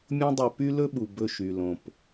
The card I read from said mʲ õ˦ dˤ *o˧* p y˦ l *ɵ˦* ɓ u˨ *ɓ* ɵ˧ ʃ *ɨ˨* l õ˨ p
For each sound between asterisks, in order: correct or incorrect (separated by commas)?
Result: correct, correct, incorrect, incorrect